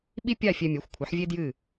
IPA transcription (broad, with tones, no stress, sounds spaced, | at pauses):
ɓ i˥ pʲ a˥˨ fʲ ɛ˧ mʲ ɛ˩˥ xʷ kʷʰ ɨ˩˥ ħ vʲ e˥ d j ɨ˥˨